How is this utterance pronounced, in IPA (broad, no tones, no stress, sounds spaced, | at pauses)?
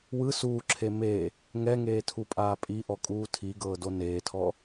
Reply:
w ɯ s uː ǁʰ e m e | ŋ ɛ ŋ eː tʰ u pʼ aː pʼ i ʔ ɔ kʼ uː tʰ i ɡ ɤː d o n eː tʰ ɔ